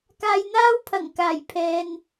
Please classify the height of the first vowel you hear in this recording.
low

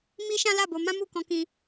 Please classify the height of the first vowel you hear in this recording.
high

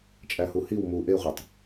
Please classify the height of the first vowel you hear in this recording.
low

